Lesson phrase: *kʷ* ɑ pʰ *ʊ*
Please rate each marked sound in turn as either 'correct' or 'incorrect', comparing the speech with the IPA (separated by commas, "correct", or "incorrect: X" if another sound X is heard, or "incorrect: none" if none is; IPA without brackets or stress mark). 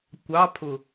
correct, correct